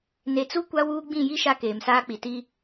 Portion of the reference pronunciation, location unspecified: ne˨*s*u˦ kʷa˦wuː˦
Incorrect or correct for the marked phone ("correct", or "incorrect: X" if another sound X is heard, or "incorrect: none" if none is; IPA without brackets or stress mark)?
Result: incorrect: t͡s